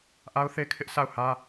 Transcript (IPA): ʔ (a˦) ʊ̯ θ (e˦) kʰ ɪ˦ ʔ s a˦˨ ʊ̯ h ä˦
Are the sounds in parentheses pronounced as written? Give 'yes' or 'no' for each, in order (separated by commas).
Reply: yes, yes